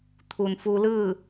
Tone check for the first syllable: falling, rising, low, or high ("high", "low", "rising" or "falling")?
low